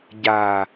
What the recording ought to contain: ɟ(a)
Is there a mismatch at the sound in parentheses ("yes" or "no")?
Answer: no